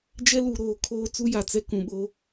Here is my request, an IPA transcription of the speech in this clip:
d͡ʒ ɛ˦ l u˨ ɾ oː˨ kʰ oː˦ t͡s u˦ j a˨ t͡s ɛ˦ k ũ˨ ɓ o˦

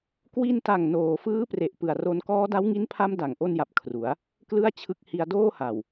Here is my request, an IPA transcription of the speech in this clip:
k w i˧ n t a˨˩ ŋ n oː˨˩ f ɯː˦˥ p r e˨˩ ʔ p ɯ˨˩ a̯ r o˧ n k ɔː˦˥ d a˦˥ w ŋ i˦˥ n pʰ a˦˥ m d a˨˩ ŋ ʔ o˥˩ n j a˨˩ p̚ kʰ r u˩˦ a̯ | k l ɯ˥˩ a̯ t͡ɕʰ ɯ˦˥ k̚ h i˧ a̯ d oː˥˩ h a˨˩ w

